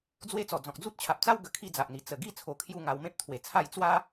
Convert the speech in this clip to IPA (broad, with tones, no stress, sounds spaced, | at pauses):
d͡z w e˦ t͡s ɔ˨˩ d͡z ɔ̃˨ k̚ d͡z u˦ t̚ t͡ɕʰ a˨ p̚ t͡s a˦ w ɡ ə˨˩ kʰ i˥˧ d͡z a˨ ʔ n̪ i˨˩ t͡s ə˨˩ ɡ i˥˧ t͡sʰ o˧ kʰ j u˥˧ ŋ a˧ w m ẽ˦ p̚ t̪ʰ w e˨˩ t͡sʰ a˥˧ j t͡s w a˦